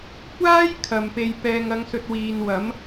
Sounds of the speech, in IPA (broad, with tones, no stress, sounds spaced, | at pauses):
kʷ aː˥ j kʰ ɐ˨ m p e˧ j p ɛː˨ ŋ ɐ˨˧ ŋ s ɵ˨ t̚ w iː˨ n w ɐ˨˥ m